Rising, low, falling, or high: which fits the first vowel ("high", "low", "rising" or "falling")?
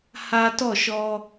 high